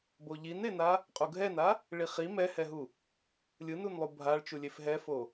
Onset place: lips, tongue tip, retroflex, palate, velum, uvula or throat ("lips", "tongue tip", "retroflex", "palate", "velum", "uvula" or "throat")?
lips